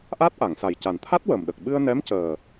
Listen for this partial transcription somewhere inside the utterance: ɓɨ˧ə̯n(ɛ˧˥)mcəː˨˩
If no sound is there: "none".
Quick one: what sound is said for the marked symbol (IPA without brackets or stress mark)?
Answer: ɛ˧˥